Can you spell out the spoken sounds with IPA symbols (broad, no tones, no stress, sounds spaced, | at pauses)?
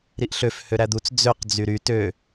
ɾ i ʔ ɬ ø f h ø ɾ æ d̪ u t͡s d͡z ø q d͡z y ɾ y t ø